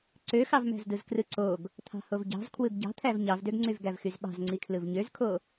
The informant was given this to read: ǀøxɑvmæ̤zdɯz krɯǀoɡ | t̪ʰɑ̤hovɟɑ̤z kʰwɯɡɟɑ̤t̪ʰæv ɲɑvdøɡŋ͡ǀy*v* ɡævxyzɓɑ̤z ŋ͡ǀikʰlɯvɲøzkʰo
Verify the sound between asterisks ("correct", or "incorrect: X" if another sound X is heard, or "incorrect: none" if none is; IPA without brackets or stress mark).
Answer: correct